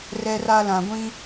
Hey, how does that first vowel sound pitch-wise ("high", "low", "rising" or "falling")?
low